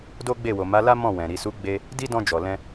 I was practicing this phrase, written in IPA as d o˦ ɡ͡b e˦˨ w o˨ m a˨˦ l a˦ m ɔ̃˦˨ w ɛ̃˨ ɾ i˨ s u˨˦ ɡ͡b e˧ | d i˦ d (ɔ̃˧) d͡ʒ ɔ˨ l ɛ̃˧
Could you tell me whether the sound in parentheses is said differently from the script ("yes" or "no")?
no